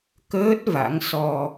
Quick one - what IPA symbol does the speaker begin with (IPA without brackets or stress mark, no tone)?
k